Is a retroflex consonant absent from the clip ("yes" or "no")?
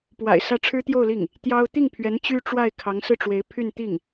no